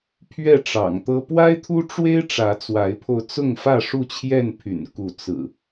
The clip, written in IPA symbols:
pʰ ɥ ɛ˥˨ ʈ͡ʂ ɑ̰˨˩ ŋ t̪ ɤ˦ p w a˦ ɪ̯ t̪ʰ u˦ ʈ͡ʂ w e˦ ɪ̯ ʈ͡ʂ ä˨˦ t͡s w a˨˦ ɪ̯ pʰ o˧ ʊ̯ t͡s ʊ˥˨ ŋ f ä˥˨ ʂ u˥˨ t͡ɕʰ j ɛ˥˨ n pʰ y̰˨˩ n k u˨˦ t͡s ɹ̩˨˩

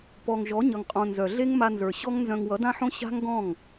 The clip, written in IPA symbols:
p ɔ˨ ŋ ʒ ɔ˨˦ ɲ ʌ˨ ŋ qʼ õ˨ n z œ˨ ɮ e˦ ŋ m a˧ n z ə˞˨ ɕ ɔ˦ ŋ n z œ̃˧ ŋ w ʌ˨˦ d ã˦ ħ õ˦ ɕ a̤˦ ŋ ɡ ɔ̃˦˨ ŋ

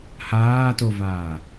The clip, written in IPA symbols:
h aː t o v aː

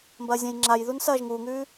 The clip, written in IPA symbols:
m b ɐː zʲ ã j ŋ͡ǁ a j ð u n s ɐː ʒ ŋ uː ŋ ʉː

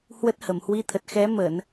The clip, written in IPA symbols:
h w ə˦˥ t̚ h ə˧˩ m h w i˧ t̪ʰ ə˨˩ t̚ x ɛ˨˦ m ə˧˩˨ n

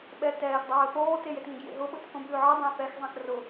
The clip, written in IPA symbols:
ɓ ɛ t ɛː x dˤ ɵː θ oː t e j e t ŋ ẽ ɡ j ḛ ɦ ʊ ɓ ʊ t θ õ b ʉː ʕ ɯ dˤ ɛ̃ θ ɛ x zˤ ɛ̃ x r ʊ

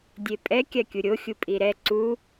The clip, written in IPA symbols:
dʲ e pʼ ɛ kʲ a kʲ u ɾʲ o xʲ u pʼ i ɾ ɛ ǀ u

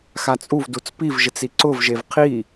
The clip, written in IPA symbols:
x a t͡sʼ u v d u t͡s p i v ʒ ɪ t͡s i ǀ ʊ v ʒ e v qʰ i

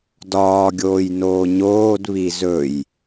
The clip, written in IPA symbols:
d ɒː ɡʲ oː j n oː ɲ oː d β i z ɵ j

